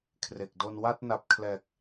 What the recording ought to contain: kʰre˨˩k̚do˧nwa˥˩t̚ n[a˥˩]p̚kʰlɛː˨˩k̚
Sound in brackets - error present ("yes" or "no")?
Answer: yes